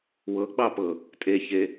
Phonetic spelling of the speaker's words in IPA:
w ɤ ɡ͡b ɑ p ɤ | tʼ e ç e

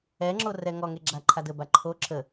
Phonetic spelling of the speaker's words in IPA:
ɛ ŋ͡ǁ o r ɛ ŋ ɔ ŋ e ɡ͡ǁ a ǃʰ a d ə b a ǃʰ o ǁʰ ə

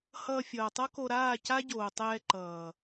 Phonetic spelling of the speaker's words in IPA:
h ʌː˧ fʲ ʌː˨ tˤ ʌ˦ k o˧ ɾ aː˦˨ c a˦ ɟ oː˨ tˤ ɛː˧ ǃ ʌː˨

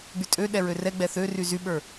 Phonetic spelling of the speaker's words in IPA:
ɡ͡b y tʼ ø ɗ ɛ ɹ ø r ɛ ɡ͡b ɛ θ ø r y z y ɓ ə˞

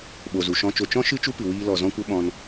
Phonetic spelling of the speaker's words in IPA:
ɓ o˨ z u˨ ʃ ɔ̃˧ t͡ʃ o˧ t͡ʃ ɔ̃˦ ʃ ɨ˦ t͡ʃ u˦ p ɨ˨ w iː˧ l ɔ˨ z ɔ̃˦ kʷ ə˦ ɓ ɔ̃˧ n

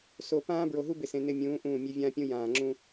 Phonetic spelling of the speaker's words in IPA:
s o˨ p ãː˦ b ɹ o˨ ɦ u˦ b ɪ˨ s ẽ˨ n ɪ˦ mʲ ũː˨˦ ʔ ũː˦˨ mʲ e˦ vʲ ãː˦ pʲ ũ˦ j ãː˨ ŋ͡ǁ ũ˦

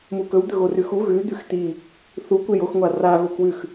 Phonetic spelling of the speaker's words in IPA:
m u k ɵ w d̪ ɵ ɣ o r ʉ x u ɣ ʉ d̪ ʉ x t̪ i | θ u kʷ e j o x ŋʷ a r a ɣ o k w ʉ x

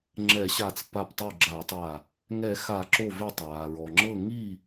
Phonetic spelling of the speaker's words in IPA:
ŋ͡ǁ ɛ˨˩˦ ɕ a˧˩ t͡s p a˧˩ p tˤ u˧˩ ɡ͡ǁ a˨˩˦ tˤ a˧˩ | ŋ ɛ˨˩˦ x a˨˩˦ ǁ o˧˩ v e˧˩ tˤ ɹ a˩ ɹ ɔ˩ ŋ͡ǁ ɤ˥˨ ŋ i˥˨

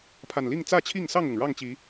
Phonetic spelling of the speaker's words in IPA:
pʰ a˨˩ n l i˥˨ ŋ t͡s ä˥˨ t͡ɕʰ i˥˨ ŋ s ɑ˥˨ ŋ ʊ˩ ŋ ɻ ɑ˥˨ ŋ t͡ɕ i˨˦

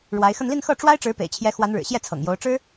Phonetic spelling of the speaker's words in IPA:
ɻ w a˧˥ ɪ̯ x ə˥˧ n l i˥˧ n x ɤ˥˩ ʈ͡ʂ w a˥ ɪ̯ ʈ͡ʂ ɻ̩˧˥ p ḛ˨˩ ɪ̯ t͡ɕʰ j ɛ˧˥ x w a˧˥ n ɻ ɻ̩˨˩ ɕ j ɛ˥˩ t͡sʰ ɤ̰˨˩ ŋ j o˧˥ ʊ̯ ʈ͡ʂ ɻ̩˥

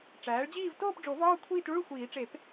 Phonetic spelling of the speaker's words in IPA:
ʈ͡ʂ æː˩˥ ɭ d͡ʑ iː˥˧ v t oː˥˧ p ɖ͡ʐ o˨˩˦ v ɒː˥˧ kʷʰ iː˥˧ t ɭ u˥˧ ɭ xʷ iː˨˩˦ ʈ͡ʂ e˨˩˦ p

